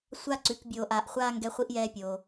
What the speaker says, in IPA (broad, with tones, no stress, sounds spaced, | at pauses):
sʷ a˦ ǀ ʉ˨˦ k bʲ oː˧ ʔ aː˧ ʔ χʷ aː˦ ŋ ɡ ɛ˦ χʷ i˦ ʔ j ɛː˦ pʲ oː˧